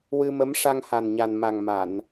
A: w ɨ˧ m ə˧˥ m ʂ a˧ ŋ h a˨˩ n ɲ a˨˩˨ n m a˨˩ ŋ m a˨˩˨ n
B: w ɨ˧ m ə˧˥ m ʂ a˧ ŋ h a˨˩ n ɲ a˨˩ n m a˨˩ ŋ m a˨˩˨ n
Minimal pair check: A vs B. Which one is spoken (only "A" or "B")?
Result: B